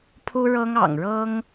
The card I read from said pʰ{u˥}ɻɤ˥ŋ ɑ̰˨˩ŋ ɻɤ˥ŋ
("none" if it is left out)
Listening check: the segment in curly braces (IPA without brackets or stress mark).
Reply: u˥